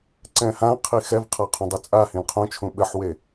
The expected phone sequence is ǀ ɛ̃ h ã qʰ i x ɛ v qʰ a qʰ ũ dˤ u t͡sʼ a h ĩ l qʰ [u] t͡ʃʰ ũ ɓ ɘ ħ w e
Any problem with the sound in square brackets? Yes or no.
yes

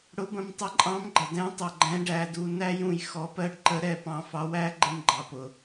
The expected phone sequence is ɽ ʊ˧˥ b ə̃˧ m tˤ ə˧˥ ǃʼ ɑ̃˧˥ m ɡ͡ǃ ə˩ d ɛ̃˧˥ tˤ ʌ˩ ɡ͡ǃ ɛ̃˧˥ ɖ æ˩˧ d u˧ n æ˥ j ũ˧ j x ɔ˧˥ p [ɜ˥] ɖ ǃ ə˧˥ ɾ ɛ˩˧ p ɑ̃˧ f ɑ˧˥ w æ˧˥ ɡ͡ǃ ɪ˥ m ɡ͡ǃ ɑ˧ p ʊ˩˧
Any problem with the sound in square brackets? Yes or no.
no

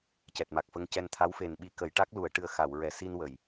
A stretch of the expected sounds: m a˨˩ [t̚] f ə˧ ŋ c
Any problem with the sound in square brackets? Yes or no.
yes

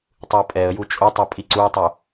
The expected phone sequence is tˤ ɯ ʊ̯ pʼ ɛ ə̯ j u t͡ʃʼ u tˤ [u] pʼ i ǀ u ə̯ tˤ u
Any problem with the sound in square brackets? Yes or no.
no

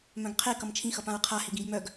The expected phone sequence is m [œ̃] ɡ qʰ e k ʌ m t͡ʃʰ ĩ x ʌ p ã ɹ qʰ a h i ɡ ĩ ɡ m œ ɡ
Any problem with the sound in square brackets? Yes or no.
no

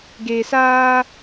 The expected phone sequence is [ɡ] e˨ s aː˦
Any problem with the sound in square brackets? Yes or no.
no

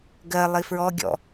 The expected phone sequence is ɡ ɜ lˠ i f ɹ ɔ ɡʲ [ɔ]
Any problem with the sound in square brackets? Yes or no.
yes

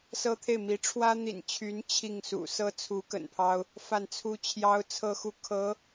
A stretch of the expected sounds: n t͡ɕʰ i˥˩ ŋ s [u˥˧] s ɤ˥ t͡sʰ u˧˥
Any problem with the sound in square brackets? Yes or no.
yes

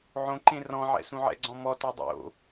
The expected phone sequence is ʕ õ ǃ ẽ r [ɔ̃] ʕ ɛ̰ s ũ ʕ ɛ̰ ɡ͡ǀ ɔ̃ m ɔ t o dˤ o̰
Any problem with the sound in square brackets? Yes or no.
no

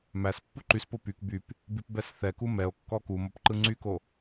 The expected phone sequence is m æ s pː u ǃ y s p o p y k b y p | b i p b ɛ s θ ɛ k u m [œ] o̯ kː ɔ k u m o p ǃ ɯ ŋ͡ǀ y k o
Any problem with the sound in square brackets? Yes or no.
yes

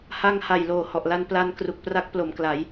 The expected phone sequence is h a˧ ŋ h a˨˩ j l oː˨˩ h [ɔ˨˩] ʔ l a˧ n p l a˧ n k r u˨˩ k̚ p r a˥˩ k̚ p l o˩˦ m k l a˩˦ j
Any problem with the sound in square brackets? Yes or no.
no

